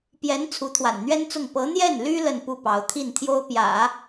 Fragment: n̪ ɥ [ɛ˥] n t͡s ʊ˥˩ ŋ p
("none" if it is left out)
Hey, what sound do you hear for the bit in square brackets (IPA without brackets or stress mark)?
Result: ɛ˥